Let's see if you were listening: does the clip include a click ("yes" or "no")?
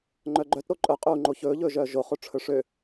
yes